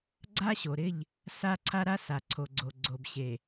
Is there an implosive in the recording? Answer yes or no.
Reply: no